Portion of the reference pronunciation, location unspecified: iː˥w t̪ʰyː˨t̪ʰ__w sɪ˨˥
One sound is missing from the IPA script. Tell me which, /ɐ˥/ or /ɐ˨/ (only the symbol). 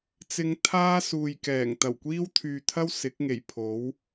ɐ˥